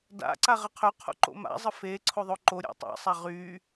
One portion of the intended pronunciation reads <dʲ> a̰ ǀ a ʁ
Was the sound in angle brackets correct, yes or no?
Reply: no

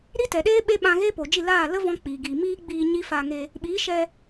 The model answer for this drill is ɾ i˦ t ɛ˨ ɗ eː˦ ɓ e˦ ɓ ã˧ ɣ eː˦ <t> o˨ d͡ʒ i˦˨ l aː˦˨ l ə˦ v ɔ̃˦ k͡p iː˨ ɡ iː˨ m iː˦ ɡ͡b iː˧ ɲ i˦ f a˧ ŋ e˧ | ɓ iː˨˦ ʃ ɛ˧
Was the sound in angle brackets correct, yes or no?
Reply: no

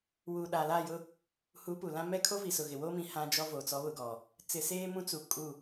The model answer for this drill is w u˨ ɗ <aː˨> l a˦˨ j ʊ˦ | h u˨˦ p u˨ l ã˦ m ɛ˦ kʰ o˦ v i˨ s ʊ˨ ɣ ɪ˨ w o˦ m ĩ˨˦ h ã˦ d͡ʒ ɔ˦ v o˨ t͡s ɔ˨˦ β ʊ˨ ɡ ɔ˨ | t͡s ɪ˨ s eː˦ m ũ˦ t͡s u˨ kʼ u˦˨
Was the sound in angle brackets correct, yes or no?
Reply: yes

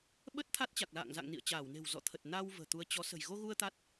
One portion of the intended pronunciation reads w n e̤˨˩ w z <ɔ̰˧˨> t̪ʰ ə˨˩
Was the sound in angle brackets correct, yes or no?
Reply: yes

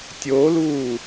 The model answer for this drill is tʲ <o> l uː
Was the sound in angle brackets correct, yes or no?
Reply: yes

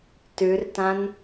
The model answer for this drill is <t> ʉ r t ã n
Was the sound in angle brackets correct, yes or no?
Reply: yes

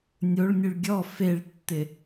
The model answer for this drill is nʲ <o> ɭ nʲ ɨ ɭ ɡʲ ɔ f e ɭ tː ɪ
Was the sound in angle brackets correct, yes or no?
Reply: yes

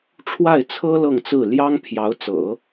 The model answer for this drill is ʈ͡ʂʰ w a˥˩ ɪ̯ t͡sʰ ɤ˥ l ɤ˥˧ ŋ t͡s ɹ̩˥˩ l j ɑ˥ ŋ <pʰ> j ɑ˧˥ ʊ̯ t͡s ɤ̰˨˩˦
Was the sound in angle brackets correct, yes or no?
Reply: yes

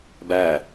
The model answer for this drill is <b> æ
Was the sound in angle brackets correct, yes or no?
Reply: yes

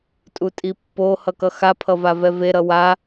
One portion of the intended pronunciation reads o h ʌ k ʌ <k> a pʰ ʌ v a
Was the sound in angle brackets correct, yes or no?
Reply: no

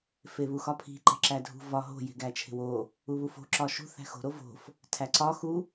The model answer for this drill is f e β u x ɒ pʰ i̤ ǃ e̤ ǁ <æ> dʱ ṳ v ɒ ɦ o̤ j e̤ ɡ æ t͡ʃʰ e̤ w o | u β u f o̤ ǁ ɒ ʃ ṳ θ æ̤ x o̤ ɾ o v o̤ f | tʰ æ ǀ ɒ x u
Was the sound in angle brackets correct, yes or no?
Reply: yes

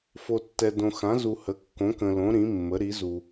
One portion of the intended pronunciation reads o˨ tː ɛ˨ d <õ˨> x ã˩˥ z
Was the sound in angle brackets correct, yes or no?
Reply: yes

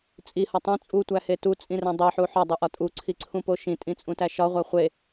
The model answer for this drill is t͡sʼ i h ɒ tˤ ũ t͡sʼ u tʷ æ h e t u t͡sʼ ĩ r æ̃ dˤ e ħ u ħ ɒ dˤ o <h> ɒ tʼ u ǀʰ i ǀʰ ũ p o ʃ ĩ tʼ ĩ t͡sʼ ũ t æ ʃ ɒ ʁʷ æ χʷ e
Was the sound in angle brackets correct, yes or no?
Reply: no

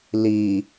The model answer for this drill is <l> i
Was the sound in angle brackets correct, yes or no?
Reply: yes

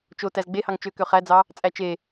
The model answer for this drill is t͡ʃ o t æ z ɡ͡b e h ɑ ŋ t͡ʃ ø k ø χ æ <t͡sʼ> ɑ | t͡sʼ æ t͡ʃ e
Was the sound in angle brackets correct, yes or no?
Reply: no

